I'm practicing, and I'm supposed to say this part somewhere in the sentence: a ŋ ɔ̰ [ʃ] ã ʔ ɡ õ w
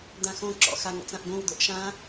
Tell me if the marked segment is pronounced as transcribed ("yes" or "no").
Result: no